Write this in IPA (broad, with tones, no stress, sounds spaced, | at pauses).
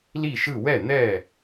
l i˥˨ ʃ ɯ˥˨ w ɛ˥˨ n̪ ɛ˥˨